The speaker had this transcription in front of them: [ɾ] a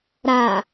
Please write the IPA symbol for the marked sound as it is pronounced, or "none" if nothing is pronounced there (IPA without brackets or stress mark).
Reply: ɾ